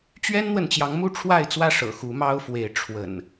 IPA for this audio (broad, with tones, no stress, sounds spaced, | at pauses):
t͡ɕ ɥ ɛ˦ n n̪ w ə˨ n t͡ɕ j ɑ˨˦ ŋ m u˥˨ ʈ͡ʂʰ w a˥˨ ɪ̯ t͡s w ä˥˨ ʂ ɤ̰˨˩ x u˨˦ m ɑ˦ ʊ̯ f w e˨˦ ɪ̯ ʈ͡ʂʰ w ə̰˨˩ n